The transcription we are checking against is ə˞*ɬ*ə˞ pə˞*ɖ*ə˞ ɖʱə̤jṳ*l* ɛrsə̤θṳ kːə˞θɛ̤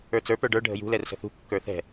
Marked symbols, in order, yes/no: no, yes, yes

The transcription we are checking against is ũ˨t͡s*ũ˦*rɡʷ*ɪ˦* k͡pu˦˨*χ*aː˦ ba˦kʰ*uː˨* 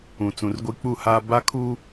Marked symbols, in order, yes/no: no, no, no, no

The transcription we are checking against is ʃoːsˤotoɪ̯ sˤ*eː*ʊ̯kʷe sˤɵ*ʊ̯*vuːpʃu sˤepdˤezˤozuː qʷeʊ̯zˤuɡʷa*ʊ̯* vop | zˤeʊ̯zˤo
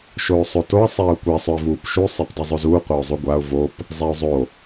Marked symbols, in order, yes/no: yes, no, yes

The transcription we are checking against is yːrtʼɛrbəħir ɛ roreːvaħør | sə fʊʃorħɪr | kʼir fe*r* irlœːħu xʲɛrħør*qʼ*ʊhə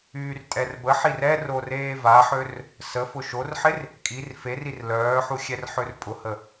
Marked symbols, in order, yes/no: yes, no

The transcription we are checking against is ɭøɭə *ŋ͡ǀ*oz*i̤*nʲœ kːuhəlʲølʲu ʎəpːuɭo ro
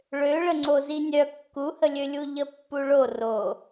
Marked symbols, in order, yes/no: yes, no

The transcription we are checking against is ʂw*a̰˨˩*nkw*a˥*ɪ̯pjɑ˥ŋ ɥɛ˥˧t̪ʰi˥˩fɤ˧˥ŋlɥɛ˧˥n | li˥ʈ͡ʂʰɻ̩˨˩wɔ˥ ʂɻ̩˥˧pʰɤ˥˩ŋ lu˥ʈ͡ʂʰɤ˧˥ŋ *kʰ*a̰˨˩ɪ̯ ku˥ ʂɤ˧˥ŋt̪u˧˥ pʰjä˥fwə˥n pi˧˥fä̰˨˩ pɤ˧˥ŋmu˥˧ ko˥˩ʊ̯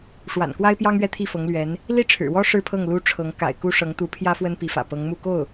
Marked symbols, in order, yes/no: yes, yes, no

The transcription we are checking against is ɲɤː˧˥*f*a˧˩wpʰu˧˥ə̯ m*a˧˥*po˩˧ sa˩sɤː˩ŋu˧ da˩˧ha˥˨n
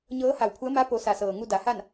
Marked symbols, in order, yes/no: no, yes

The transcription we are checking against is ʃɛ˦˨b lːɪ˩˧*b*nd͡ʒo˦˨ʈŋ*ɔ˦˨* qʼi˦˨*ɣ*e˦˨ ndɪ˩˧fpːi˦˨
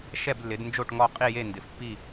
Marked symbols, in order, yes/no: no, yes, no

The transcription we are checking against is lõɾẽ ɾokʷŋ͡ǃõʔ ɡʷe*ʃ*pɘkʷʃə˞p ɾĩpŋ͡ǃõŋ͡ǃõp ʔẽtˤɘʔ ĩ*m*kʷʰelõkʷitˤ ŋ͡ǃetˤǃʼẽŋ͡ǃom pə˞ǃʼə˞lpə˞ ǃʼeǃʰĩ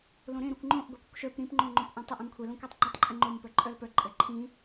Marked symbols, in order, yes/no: no, yes

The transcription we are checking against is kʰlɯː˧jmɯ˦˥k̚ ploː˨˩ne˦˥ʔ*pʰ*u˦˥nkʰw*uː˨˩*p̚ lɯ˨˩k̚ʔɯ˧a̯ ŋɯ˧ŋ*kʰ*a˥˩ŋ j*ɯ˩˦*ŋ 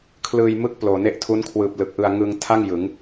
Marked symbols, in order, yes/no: no, no, no, yes

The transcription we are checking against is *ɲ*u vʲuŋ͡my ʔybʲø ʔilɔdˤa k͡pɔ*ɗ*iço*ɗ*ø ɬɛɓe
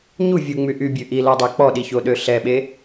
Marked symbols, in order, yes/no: yes, yes, yes

